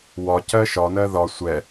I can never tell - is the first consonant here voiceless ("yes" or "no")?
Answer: no